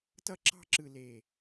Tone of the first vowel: high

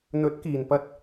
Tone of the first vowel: rising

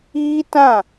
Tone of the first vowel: high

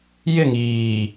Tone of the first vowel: falling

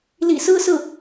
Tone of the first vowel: low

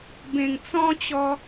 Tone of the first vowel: low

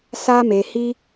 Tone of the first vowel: high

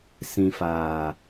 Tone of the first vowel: low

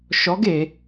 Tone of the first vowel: rising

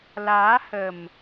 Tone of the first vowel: rising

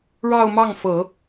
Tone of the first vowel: falling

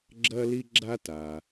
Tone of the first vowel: high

